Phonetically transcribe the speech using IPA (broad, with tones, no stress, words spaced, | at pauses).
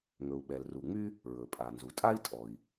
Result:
ŋɵ˩u̯ɓɛ˩lru˩ŋ͡my˥ | ɹɵ˩pʼa˩nzu˩ tʼa˥i̯tʼɔ˩i̯